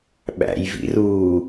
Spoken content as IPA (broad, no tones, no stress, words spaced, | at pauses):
ɓæ̰jvḭruː